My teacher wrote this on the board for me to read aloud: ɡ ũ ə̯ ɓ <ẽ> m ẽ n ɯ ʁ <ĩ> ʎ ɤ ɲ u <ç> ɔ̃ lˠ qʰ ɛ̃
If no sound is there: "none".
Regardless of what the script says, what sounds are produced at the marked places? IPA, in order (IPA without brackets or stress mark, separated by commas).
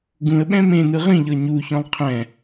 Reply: ɛ̃, ĩ, ç